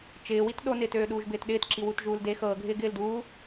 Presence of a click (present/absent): present